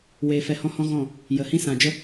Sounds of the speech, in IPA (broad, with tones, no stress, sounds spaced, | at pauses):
w eː˧ f ɛ˧ h ɔ̃˧ h ɔ̃˧ ɣ ɔ̃˦˨ | j ə˨ h ĩ˧ s ã˨ d͡ʒ ə˧